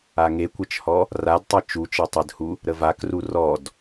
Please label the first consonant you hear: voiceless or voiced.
voiced